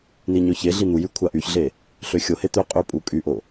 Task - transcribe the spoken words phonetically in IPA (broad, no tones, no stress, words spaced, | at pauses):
niɲøçeɮi n̪ujy kʷʰaʔyçɮe | ɬøxʲohe t̪øqʼy pʼukʼyʔo